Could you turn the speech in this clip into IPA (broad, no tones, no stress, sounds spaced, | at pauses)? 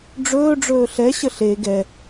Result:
ɖ͡ʐ ɵː ɖ͡ʐ ɵː ɬ ɛ ɕ ə ɬ e ɡ ɛ